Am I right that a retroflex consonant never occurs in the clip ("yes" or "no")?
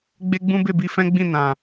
yes